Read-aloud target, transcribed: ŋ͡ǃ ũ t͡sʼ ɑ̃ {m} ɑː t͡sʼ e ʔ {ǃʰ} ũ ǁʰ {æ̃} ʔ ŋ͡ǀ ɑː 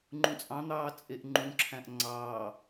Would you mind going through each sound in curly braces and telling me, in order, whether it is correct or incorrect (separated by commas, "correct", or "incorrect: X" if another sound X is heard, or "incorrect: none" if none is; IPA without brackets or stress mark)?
incorrect: n̪, incorrect: ŋ͡ǃ, correct